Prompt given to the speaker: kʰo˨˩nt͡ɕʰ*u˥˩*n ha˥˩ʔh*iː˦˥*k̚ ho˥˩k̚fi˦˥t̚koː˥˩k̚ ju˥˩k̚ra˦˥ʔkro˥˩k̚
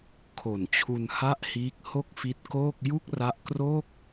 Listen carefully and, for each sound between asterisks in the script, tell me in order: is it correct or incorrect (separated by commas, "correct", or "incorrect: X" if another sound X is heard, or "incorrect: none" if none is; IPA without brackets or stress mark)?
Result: incorrect: u˧, correct